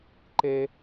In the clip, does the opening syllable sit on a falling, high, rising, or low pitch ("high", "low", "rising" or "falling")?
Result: high